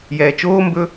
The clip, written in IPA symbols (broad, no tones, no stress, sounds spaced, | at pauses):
j ɛː t͡ʃ oː m b ɵ